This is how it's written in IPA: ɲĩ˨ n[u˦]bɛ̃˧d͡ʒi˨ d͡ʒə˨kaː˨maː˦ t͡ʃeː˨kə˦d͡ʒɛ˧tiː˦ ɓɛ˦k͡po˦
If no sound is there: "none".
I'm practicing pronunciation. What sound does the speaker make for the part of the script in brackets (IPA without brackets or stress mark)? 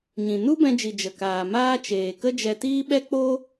u˦